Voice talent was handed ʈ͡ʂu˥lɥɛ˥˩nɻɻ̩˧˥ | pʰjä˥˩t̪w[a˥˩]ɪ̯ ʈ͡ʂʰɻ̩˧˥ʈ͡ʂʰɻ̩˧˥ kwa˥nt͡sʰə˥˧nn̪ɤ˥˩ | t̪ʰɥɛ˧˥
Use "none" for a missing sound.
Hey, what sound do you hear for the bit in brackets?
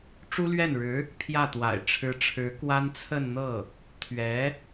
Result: a̰˨˩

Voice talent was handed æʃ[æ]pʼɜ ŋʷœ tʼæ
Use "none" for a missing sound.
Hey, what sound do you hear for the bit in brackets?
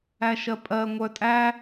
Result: ɜ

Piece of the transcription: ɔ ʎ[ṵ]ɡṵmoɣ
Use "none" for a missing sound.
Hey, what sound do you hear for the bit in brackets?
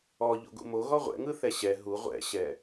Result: o̰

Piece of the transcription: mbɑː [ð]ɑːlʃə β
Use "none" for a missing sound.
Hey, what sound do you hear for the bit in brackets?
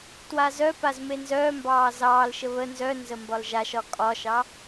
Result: z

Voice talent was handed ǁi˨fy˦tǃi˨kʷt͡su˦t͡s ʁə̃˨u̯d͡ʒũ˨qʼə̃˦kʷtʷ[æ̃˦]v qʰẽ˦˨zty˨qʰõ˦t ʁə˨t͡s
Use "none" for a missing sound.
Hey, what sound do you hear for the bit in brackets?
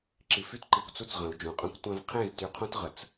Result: æ̃˦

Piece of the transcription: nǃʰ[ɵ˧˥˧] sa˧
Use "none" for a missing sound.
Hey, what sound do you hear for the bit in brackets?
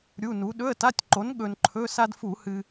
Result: ɵ˧˥˧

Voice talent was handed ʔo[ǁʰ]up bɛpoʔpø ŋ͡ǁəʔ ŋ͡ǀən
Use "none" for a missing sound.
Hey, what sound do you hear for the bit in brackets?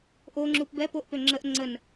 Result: ŋ͡ǁ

